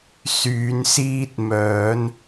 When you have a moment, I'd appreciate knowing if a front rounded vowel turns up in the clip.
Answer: yes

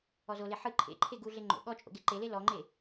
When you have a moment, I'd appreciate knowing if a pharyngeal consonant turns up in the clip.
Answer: yes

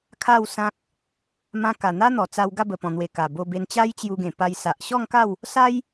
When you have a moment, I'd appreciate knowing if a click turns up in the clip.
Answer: no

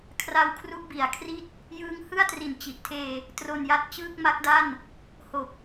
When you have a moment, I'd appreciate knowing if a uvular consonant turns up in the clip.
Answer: no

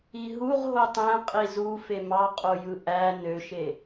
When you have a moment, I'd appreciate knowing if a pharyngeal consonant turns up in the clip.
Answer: no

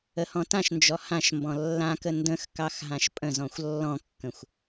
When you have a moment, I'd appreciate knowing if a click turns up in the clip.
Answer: no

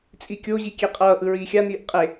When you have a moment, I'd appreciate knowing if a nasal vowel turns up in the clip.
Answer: no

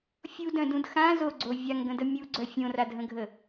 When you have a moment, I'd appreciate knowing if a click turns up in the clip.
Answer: yes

